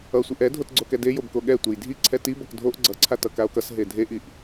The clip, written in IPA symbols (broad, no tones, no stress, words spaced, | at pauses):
ʌsʷiʔ ɛ dʱotɡ͡ǀokɛde jobkoɠɛtʷej dʱiǀʰɛ ti bʌkdʱoʔ ɡ͡ǀʌǀʰa tʌkao̯kʌs ɦedʱeʔiʔ